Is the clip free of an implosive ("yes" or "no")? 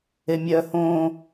yes